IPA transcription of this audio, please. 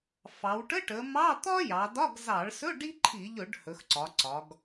fɑ˩˧wʈə˧˥˧ʈə˩˧ mɑ˧˥˧t̪ɒ˥jɑ˩˧dɒ˧˥˧ɡ zɑ˧˩˧ɭsɵ˧˥˧ ɖi˥ǃʰi˧˩˧ʎɵ˧˩˧ɖ hɵ˩˧xǀɒ˩˧ǀɒ˩˧ɡ

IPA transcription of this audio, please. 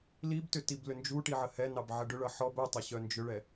libtʏ tiblʏnd͡ʒuʈi ʕəhɛnɑb ʕəɖʏɭʌ ħɔb œtˤʌ ɕœnd͡ʒʏɭɛ

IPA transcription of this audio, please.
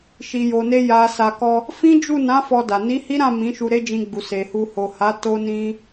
ʃi˨jo˨ ne˧ja˨sa˨kɔ˧ | fĩ˦d͡ʒu˦˨ nã˨˦ fɔ˧da˨ ni˨˦hi˦ɾã˦˨ mĩ˨˦ʃu˧ ɾe˦d͡ʒĩ˧ɡ͡bu˨ se˨hu˧ ho˨ha˨˦ to˧nĩ˧

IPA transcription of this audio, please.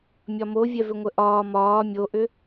mʲɒmovʲɛ vʏŋʷəʔɒː mɒː mʲoʔʏ

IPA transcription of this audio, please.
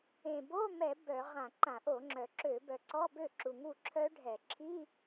ẽ˨˩ bo˧˥˧mɛ˧˩˧ bœ˧˩˧ ʁã˧˩˧ǃã˧˩˧ʔo˧˩˧ŋ͡ǁœ˨˩ ǁø˧˩˧bœ˨˩ ǀɔ˧˥˧bø˥˩ ǁu˨˩ŋu˥˩ ǁʰœ˦˥ɖʱɛ˧˩˧ ǁʰi˧˥˧

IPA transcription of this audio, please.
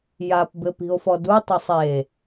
japbɘpi̤o̯fɔ dutˤosˤ e

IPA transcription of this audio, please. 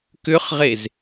kʏχʁez

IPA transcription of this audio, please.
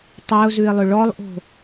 tˤeʊ̯zʉɪ̯lˠʏ ɭɔlˠʔo̤

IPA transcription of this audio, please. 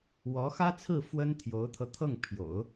wɔ˧˥xä˥t͡sʰɹ̩˥˩ fwə˥nt̪ʰjo˧˥ʊ̯t̪ʰɤ˧ t̪ʰɤ˥˩ŋ pʰjo̰˨˩˦ʊ̯

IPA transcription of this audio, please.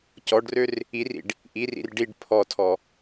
cɔɖrør | irḭɖ | ʔirḭr ɖiɖ pʰɔtʰɔ

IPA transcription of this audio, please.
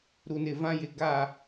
ɾu˨nɪ˨vã˦jɪ˨ ɡa˦˨

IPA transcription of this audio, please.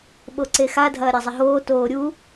ɓoǀexa dʱɐːɾʲazˤɘɦoː toːɾʲu

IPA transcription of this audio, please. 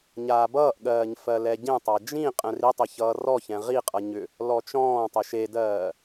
ɲaːbʌːʔɠɜːɲ fɜlɛɟẽtˤa d͡ʒĩ qʼɛ̃ritˤe çʌːrɔçɛ̃ ʁiqʼʌ ɲʏ | lɔt͡ʃɔ̃ːtˤɛʃ edɜː

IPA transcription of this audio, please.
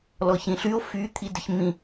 lɔçĩɬyo̯ fy t̪ʰidəçmĩ

